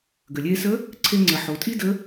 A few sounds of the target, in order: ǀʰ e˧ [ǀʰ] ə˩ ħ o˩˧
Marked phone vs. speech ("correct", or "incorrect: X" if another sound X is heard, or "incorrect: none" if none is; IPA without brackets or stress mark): incorrect: ŋ͡ǀ